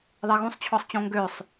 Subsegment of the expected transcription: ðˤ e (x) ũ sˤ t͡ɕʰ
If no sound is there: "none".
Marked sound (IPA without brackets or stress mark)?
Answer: ɣ